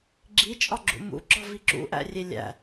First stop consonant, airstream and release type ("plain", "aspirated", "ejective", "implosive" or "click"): click